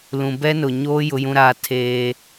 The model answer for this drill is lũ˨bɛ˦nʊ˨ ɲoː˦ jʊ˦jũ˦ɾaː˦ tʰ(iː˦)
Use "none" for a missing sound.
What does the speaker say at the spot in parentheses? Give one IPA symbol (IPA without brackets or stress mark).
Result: eː˦